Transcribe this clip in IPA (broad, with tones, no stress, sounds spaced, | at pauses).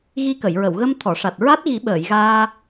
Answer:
ɣ i˧ k ə˨˩˨ j ɹ ə˨˩˨ w ɣ ə˧ m t̪ʰ ɔ˨˩˨ ʂ a˨˩ t̚ ɹ a˦˥ t̚ ɣ i˨˩˦ ɓ əː˨˩˨ j ɣ aː˧